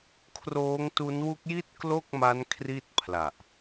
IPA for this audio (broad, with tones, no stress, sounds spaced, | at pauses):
kʰ r oː˦˥ ŋ t u˦˥ n w u˦˥ k̚ j i˥˩ t̚ k l o˥˩ k̚ m a˦˥ n kʰ r i˥˩ t̚ pʰ l a˨˩ ʔ